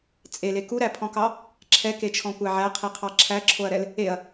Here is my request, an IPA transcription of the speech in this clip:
t͡sʼele kuɾæpʰɔ̃kɑ | ǁʰɛket͡ʃʰɔ̃kʷæ ʕæqʰiqʰɑ ǁʰæǁʰoɐ̯ɾɛl | eɐ̯

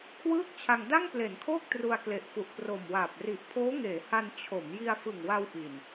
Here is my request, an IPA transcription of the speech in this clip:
kʰwɯː˥˩k̚t͡ɕʰa˧ŋ da˥˩ŋple˩˦nkʰoː˥˩k̚ tru˧a̯kle˨˩ʔfu˨˩ʔ pro˨˩mwaː˨˩p̚ ri˨˩ʔpʰoː˦˥ŋeː˩˦ha˧n t͡ɕʰo˩˦m ji˧a̯fɯ˨˩ŋwa˧w ʔi˨˩n

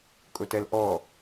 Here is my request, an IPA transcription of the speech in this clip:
kʼʊtɛlʔɔ

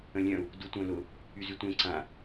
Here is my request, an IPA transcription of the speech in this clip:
ə̃lʲœ̃u̯ | dutʷœ̃lʊ | yzytʷẽ ǀã

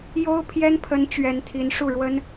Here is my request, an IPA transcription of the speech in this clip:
jo˥ʊ̯pʰjɛ˥npʰə˧˥n t͡ɕɥɛ˧˥nt̪ʰi˧˥nʂu˥˩ɻwə˥n

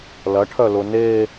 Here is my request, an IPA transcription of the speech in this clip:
lɐʈʰœ lʊne

